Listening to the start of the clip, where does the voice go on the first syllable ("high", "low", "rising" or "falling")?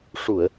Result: low